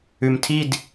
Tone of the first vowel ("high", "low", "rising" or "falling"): low